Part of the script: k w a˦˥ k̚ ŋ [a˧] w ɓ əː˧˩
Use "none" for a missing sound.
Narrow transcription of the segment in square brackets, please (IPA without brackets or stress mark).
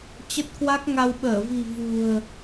a˧